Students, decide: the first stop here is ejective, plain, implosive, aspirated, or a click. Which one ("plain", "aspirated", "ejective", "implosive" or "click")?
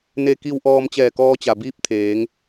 plain